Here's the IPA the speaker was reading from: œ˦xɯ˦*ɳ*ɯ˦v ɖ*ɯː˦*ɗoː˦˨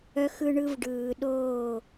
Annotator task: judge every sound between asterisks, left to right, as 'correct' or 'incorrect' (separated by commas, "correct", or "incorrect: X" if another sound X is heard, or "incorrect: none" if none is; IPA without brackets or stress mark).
correct, incorrect: ɯː˨